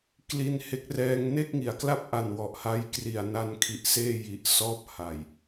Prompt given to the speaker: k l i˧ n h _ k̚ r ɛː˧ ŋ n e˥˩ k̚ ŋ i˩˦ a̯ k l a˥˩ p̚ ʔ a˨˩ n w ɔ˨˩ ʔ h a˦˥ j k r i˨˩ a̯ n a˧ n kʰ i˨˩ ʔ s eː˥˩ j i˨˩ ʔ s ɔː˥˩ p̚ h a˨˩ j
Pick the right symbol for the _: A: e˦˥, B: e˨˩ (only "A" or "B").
A